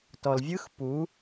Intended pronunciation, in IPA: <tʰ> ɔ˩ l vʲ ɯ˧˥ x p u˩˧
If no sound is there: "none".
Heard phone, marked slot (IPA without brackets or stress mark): t